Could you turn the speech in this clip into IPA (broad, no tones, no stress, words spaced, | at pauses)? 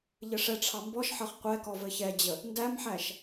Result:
ʎɘʂɛʈ͡ʂʰɑ mbɔʃħʌχ qʷɛkɔ vɘçɛd͡ʑə | ndæmħæʃ